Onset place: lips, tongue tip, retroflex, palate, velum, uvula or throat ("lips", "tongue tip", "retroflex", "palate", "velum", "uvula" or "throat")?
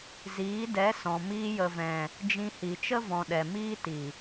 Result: tongue tip